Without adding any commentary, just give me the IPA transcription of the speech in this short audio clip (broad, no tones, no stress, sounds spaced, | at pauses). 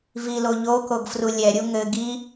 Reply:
v i l o ʎ o k o ɡ f r u lʲ ɛ ɾʲ u ŋ ɘ ɡ i